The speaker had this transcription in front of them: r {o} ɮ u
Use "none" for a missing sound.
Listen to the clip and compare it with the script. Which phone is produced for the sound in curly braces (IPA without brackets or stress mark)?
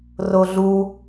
o